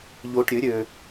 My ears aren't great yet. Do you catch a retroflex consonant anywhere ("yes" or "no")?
yes